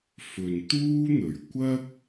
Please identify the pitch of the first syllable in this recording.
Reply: low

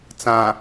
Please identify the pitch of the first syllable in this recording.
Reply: low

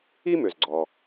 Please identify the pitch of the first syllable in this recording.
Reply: high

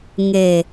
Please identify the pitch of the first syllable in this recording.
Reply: low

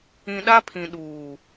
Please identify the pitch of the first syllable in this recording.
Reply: low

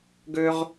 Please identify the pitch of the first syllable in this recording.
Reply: high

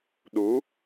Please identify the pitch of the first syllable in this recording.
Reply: rising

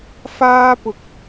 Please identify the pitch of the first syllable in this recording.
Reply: high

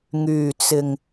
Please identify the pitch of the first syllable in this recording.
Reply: low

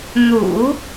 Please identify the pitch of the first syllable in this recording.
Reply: low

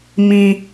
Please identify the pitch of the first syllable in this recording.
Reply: low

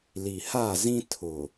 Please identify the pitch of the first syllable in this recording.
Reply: low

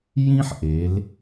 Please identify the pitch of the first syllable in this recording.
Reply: high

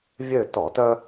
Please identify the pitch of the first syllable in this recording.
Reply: falling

